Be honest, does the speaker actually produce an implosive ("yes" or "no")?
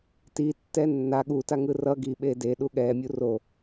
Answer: yes